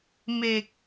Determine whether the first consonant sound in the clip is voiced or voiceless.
voiced